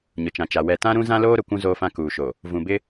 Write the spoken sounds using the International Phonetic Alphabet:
ɲ ʊ˨ t͡ʃ ã˨ t͡ʃ a˨ w ɛ˨ t ã˦ ɾ ũ˦ z ã˦ l oː˦ ɾ ʊ˨ kʷ ũ˦ z oː˦ f ã˦ k uː˨ ʃ o˨ | v ũ˨ b ɪ˦

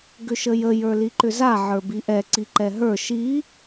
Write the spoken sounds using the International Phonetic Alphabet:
ɡ ʏ ʃ ə j ə j ə˞ l i ǃ ʏ z a ʕ ə˞ b i ʔ ɛ ǀ i ǃ ɛ ɦ ə˞ ʃ i

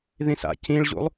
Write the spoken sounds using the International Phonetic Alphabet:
ð ĩ s a̰ c ĩ ɭ ʑ ṵ lˠ

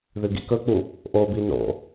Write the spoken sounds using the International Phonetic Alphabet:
ð ɨ ɡ ḭ k ɵ k͡p u | ʔ o b i n o̰

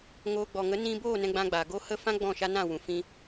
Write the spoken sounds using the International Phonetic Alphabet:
ŋ oː˧ ɡ͡b ɔ˨ ŋ ə˨˦ n ĩ˧ b oː˦˨ n ɛ̃˧ ɡ͡b ã˧ ɡ͡b a˨ ɡ o˧ h ə˦˨ f ã˦ ɡ͡b ɔ̃˦˨ ʃ a˦ n ã˦˨ w ũ˨ f ĩ˦

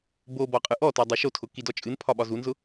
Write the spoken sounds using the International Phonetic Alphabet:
b o b ɔ qʼ ɨ ʔ ɔ t ɔ dˤ o ʃ o tʰ ʊ k i d ɔ t͡ʃʼ ɨ n pʰ ɒ ɓ ɒ z u n z ʊ

